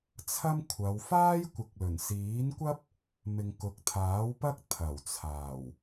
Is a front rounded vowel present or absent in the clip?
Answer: absent